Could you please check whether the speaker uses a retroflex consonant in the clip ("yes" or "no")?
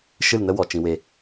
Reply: no